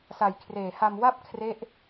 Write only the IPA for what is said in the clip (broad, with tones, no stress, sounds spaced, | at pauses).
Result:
s a˨˩ j kʰ r eː˨˩ h a˧ m w a˥˩ p̚ kʰ r e˦˥ ʔ